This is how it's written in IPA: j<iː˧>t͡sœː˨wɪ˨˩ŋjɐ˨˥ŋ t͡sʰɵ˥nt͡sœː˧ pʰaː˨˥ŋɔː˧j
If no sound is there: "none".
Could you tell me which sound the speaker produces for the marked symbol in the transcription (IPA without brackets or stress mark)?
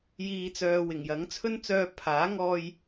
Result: iː˨